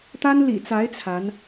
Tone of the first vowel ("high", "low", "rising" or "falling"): high